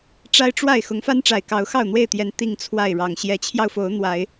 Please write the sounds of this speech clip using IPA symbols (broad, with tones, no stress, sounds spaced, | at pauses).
ʈ͡ʂ a˦ ɪ̯ ʈ͡ʂ w a˥˨ ɪ̯ x ʊ˨˦ ŋ f a˦ n ʈ͡ʂ a˨˩ ɪ̯ k ɑ˨˦ ʊ̯ x ɑ˥˨ ʊ̯ n̪ w e˥˨ ɪ̯ t̪ j ɛ˨˦ n t̪ i˥˨ ŋ t͡sʰ w a˥˨ ɪ̯ ɻ ɑ˨˩ ŋ ɕ j ɛ˨˦ t͡ɕʰ j ɑ˧ ʊ̯ f o˨˦ ʊ̯ n̪ w a˨˦ ɪ̯